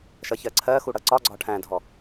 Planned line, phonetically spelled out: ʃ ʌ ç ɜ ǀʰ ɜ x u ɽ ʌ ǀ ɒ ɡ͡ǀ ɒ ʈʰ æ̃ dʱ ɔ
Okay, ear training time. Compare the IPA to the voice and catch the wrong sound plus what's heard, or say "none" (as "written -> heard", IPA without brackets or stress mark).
none